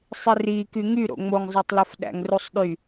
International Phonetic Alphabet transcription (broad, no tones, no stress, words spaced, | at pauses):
sˤiri kyŋyɾo̰ ŋ͡moŋzˤɑtˤlof ɗæ̰ŋrusˤɗy